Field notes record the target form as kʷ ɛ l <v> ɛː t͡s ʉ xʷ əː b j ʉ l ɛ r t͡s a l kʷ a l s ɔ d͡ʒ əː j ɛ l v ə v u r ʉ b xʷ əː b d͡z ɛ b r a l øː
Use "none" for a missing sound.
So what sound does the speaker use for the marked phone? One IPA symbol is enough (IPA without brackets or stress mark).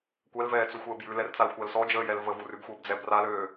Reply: v